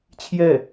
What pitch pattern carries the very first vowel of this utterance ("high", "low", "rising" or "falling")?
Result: falling